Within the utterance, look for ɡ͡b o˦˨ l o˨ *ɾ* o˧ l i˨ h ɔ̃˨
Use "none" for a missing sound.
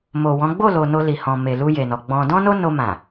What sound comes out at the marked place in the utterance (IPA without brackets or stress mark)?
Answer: n